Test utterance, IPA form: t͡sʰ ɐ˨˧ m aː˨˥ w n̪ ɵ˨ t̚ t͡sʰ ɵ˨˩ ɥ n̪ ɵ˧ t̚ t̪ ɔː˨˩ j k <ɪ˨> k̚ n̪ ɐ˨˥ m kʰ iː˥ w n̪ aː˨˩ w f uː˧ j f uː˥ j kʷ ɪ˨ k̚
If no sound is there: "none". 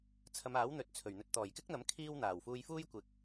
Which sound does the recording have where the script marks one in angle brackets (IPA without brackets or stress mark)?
ɪ˥